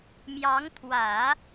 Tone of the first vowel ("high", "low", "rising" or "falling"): rising